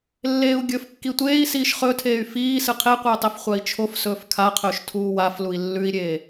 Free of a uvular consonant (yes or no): no